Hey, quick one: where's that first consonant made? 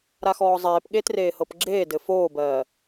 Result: tongue tip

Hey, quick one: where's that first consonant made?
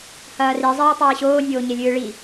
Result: throat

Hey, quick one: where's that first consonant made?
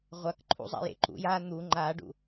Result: uvula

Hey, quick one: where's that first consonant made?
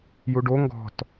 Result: palate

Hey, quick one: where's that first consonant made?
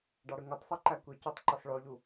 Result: retroflex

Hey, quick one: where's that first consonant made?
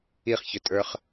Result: uvula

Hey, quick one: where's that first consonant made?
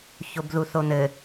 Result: palate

